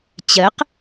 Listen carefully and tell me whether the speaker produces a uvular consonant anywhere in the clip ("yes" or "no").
yes